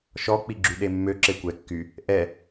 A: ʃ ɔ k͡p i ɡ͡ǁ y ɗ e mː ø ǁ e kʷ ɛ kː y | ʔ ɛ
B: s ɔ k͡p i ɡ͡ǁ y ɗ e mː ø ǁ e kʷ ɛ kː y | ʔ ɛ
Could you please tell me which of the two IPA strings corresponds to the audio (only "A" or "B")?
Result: A